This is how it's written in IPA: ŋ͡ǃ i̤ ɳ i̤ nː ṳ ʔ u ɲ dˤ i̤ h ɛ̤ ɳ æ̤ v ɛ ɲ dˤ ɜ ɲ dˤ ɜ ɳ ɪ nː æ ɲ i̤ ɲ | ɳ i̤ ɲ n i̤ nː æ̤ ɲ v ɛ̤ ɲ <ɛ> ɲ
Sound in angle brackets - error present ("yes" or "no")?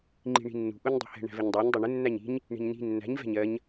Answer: yes